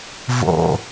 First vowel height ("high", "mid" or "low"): mid